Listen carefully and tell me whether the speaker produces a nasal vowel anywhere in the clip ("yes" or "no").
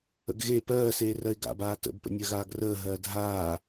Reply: no